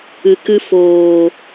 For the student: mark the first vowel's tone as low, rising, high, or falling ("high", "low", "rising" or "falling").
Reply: low